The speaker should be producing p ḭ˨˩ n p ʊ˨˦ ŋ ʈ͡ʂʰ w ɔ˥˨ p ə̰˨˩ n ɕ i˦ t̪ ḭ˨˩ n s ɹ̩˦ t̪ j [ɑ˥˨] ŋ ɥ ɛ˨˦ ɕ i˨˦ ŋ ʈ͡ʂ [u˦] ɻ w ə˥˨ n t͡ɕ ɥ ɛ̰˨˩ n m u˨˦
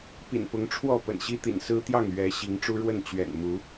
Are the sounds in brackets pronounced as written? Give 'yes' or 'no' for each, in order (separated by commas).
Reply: yes, yes